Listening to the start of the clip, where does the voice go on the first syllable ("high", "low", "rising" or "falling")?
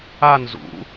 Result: falling